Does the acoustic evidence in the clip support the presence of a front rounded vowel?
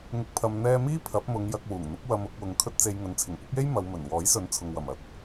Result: no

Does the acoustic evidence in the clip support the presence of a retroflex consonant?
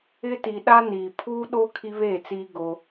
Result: no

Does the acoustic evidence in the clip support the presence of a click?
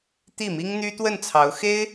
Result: no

